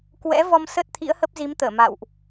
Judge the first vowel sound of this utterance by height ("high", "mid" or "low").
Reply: mid